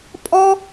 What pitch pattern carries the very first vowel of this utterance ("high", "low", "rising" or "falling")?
high